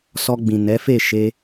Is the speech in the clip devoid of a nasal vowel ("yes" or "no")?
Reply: no